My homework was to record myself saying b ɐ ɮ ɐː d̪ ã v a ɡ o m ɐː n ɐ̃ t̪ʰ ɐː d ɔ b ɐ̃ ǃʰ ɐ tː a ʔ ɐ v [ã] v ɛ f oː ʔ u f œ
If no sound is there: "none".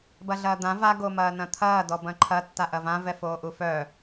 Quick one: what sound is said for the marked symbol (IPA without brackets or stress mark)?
ã